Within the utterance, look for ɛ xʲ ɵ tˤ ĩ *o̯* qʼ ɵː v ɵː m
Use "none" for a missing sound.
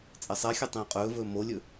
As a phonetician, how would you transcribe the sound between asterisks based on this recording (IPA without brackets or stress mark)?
o̯